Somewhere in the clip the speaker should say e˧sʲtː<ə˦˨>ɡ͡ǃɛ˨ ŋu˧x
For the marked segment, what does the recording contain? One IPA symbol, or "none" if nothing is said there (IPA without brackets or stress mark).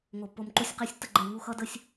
ə˦˨